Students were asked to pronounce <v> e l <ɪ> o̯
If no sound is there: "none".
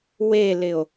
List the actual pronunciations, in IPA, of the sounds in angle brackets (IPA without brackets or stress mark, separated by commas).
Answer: w, ɪ